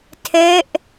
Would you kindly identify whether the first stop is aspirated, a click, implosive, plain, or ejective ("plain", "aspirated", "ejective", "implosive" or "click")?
aspirated